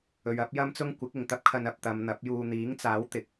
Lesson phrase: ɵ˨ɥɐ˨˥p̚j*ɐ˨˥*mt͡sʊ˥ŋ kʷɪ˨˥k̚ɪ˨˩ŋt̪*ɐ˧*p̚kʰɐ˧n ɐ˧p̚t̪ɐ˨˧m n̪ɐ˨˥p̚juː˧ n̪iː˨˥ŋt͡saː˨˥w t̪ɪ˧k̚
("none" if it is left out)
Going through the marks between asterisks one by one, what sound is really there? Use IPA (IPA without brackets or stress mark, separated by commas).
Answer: ɐ˥, ɐ˥